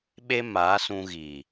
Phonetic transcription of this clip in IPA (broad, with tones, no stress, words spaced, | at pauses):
ɓe˦maː˨˦sũ˧ ɣiː˨